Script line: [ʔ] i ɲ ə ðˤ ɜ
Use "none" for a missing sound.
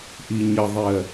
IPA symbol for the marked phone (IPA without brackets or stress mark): ʔ